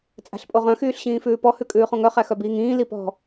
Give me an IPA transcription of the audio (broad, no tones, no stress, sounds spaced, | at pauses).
t͡sʼ æ̤ ɬ pʼ o ʁ œ̃ x yː ɬ ɕ ĩː f ʉː p ɔ h ʉ kʼ ʉː χ õ ŋ œ χ æ x œ b iː ŋ ĩː l i p ɔ̤